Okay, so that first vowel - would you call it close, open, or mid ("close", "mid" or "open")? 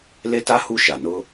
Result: mid